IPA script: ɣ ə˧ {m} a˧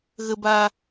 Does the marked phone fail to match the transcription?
yes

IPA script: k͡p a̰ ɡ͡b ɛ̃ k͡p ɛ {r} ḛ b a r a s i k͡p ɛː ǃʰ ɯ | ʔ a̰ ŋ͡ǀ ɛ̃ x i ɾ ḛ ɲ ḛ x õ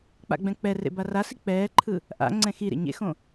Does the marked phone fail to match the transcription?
no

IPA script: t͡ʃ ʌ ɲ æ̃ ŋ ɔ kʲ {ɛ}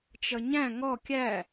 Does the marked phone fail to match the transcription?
yes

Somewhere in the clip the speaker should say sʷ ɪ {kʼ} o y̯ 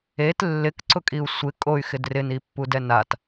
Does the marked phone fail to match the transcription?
no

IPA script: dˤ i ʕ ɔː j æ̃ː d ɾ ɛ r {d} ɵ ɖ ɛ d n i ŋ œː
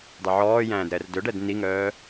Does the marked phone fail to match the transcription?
no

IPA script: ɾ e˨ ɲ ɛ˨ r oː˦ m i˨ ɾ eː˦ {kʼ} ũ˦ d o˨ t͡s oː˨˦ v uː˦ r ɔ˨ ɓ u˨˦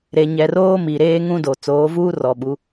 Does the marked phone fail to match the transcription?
yes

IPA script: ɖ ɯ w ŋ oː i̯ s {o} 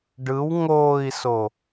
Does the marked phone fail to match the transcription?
no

